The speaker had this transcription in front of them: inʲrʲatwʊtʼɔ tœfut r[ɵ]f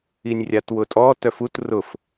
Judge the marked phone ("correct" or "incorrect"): incorrect